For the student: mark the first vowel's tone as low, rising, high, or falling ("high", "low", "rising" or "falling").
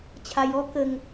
low